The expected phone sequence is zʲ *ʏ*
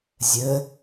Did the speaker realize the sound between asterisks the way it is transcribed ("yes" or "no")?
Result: no